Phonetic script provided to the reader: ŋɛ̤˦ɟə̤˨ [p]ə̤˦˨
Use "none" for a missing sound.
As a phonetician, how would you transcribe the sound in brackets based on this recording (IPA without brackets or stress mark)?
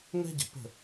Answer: p